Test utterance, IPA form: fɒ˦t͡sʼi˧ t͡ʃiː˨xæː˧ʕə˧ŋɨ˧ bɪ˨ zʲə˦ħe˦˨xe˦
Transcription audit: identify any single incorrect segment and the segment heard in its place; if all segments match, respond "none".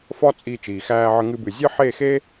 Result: ɪ˨ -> ɨ˨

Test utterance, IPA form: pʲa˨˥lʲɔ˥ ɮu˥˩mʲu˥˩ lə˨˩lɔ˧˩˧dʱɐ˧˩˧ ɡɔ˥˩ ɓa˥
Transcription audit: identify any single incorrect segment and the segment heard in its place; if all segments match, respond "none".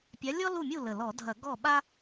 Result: ɮ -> l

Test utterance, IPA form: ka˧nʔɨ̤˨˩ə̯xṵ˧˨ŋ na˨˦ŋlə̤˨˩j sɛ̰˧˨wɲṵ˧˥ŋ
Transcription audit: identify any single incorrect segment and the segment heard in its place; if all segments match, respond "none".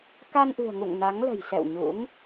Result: x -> ŋ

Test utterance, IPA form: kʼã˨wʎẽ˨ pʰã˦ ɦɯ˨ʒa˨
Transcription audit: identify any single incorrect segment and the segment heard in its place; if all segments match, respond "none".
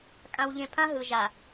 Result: none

